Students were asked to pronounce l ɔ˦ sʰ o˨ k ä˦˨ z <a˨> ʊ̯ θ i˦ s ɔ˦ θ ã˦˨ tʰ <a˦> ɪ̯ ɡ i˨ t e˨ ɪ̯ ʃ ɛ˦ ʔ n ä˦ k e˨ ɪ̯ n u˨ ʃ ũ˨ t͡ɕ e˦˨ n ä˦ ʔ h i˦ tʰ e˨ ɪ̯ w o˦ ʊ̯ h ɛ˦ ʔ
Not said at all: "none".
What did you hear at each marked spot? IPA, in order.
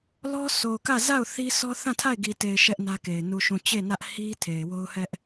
a˦˨, a˦˨

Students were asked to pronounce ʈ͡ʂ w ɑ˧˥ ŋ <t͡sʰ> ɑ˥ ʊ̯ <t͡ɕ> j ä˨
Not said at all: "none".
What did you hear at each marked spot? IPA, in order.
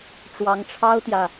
ʈ͡ʂʰ, t̪

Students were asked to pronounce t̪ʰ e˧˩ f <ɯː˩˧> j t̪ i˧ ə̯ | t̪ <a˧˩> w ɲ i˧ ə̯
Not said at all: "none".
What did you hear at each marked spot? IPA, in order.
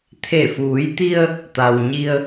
uː˩˧, a˩

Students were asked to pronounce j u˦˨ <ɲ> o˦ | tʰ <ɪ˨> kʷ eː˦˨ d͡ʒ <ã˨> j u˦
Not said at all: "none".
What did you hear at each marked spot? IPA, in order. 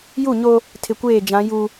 ɲ, ɪ˨, ã˨˦

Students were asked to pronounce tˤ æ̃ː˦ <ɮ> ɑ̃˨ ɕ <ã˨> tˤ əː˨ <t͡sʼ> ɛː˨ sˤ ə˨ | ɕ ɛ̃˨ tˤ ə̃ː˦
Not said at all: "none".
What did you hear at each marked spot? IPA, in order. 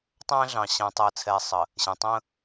ɮ, æ̃˨, t͡sʰ

